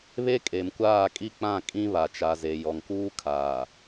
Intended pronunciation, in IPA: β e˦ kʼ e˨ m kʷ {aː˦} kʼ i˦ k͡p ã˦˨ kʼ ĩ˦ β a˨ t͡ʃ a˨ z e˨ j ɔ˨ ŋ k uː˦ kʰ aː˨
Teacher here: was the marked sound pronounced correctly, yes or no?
no